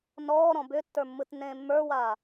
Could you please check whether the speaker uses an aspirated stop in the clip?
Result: no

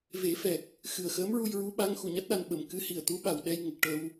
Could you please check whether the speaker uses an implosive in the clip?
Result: yes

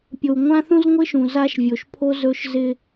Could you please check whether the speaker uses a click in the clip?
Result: no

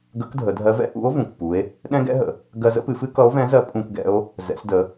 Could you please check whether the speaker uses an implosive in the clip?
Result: yes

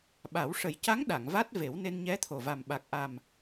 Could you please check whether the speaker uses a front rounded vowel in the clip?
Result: no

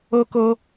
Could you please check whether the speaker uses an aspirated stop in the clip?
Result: no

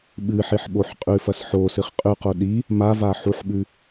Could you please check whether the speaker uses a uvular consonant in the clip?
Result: yes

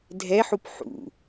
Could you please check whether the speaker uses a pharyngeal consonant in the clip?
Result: yes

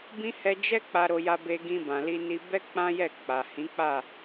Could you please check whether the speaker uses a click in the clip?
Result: no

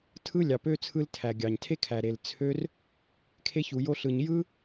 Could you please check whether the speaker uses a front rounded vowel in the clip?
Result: yes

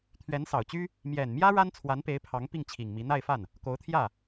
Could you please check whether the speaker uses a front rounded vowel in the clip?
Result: yes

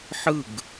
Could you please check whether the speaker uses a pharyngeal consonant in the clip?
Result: yes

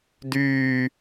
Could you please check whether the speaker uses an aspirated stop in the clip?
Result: no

